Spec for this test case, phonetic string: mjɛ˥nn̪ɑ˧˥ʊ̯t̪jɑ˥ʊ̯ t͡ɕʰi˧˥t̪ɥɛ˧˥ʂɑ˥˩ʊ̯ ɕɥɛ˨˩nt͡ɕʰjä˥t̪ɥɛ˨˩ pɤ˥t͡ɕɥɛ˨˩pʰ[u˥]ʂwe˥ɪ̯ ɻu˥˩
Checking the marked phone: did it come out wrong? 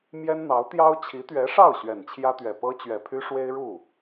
yes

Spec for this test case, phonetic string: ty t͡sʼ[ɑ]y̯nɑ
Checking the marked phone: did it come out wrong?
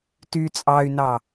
no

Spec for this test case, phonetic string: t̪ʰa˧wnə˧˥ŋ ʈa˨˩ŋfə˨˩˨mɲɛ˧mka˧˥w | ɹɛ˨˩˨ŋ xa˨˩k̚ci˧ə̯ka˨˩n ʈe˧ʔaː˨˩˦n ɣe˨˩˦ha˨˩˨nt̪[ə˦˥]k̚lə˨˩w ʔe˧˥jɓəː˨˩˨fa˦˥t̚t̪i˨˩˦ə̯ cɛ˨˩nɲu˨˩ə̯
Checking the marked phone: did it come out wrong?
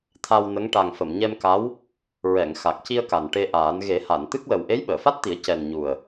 yes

